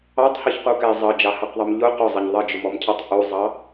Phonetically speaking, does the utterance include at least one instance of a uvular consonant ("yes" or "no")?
yes